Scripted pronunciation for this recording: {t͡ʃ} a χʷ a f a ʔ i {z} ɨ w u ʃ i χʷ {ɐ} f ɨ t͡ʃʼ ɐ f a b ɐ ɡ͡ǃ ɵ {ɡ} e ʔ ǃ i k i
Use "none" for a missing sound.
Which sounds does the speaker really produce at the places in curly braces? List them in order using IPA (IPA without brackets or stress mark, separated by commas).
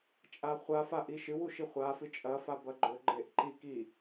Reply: t͡ʃʼ, ʃ, a, ɡ͡ǃ